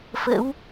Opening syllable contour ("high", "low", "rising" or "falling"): rising